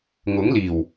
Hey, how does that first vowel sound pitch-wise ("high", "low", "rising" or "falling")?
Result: rising